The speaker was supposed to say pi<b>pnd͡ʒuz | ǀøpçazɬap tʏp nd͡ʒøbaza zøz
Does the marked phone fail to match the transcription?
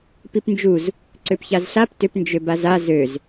yes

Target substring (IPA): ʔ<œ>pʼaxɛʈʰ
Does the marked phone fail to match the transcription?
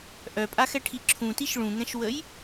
no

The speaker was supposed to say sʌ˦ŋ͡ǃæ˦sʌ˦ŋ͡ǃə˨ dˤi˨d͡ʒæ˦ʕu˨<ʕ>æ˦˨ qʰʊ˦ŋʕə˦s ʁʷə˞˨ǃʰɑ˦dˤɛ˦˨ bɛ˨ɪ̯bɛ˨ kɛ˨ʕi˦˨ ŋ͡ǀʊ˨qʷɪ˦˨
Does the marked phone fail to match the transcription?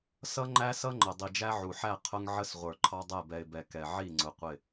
yes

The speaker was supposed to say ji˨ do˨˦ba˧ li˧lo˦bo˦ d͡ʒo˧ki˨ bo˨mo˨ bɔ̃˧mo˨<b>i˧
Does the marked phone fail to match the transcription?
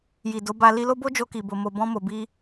no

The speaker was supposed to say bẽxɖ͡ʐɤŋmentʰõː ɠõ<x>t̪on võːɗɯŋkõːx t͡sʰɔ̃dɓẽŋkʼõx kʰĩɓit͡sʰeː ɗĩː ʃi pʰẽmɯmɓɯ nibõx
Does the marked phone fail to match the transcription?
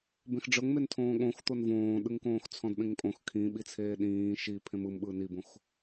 no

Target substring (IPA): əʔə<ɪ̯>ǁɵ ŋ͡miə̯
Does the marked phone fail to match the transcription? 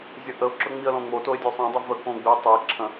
yes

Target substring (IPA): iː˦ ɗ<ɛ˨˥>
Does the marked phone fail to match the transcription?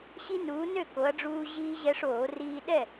yes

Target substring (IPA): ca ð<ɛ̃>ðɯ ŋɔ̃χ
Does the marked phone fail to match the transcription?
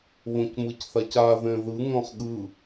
no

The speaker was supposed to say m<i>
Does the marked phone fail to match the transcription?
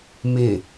yes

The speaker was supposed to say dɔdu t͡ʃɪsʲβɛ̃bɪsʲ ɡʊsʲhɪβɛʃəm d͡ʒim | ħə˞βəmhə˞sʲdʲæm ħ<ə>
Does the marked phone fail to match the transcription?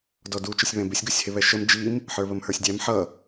yes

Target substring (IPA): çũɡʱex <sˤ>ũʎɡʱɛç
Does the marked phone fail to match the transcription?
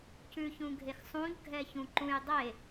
no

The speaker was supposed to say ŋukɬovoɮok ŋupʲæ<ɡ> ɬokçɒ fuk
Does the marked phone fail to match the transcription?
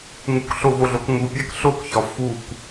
yes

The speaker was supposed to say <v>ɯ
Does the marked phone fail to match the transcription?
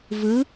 no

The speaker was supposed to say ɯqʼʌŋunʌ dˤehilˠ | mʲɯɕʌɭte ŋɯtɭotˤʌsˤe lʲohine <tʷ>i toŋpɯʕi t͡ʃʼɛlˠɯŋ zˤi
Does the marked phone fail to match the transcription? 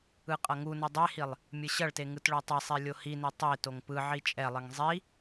yes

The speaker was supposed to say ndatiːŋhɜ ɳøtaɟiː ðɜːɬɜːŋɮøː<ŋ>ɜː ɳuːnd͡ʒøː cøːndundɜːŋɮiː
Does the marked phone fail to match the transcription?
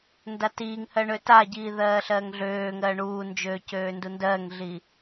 no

